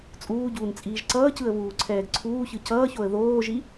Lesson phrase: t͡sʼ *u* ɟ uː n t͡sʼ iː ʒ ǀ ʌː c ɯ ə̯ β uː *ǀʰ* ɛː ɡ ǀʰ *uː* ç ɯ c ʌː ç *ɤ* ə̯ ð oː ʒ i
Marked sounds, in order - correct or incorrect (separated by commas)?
incorrect, correct, correct, incorrect